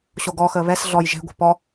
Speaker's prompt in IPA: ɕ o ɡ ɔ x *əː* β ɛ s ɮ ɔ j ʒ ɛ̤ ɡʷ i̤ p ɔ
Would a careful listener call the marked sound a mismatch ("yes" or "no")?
no